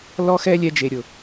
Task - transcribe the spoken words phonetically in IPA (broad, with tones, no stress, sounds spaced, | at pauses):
l ɔ˦ x ɛ˦ lʲ ɛ˦ d͡ʒ e˨ ɾʲ ʊ˨